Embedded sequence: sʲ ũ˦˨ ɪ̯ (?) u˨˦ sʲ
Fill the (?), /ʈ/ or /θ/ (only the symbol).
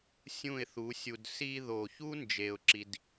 θ